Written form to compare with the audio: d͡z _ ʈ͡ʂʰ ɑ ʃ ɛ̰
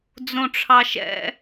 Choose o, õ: õ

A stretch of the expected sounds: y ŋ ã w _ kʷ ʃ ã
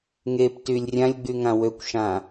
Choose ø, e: ø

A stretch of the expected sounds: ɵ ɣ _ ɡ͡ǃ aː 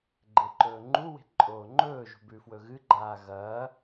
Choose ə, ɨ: ɨ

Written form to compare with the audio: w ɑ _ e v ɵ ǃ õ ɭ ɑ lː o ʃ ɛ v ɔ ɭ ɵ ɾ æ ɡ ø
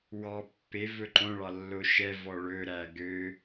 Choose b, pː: pː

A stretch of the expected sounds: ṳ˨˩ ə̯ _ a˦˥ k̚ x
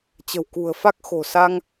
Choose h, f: f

